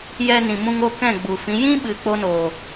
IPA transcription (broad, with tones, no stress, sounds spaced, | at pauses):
j ɛ˧ n ĩ˨ m ũ˧ ŋ o˦˨ k ɛ̃˦˨ ɡ͡b u˨ f ĩ˨˦ j ĩ˦ ɓ ɨ˨ k͡p o˦ n oː˨